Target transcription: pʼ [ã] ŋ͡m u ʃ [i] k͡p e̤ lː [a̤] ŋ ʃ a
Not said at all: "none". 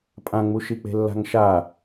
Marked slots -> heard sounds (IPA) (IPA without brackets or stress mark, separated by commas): ã, i, a̤